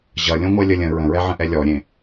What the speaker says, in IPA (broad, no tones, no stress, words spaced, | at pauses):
ʑʌlʲõ ŋʷɛlʲəlʲə̃ ɹə̃ɹɛʕə̃ʔɛ lʲɔɾʲẽ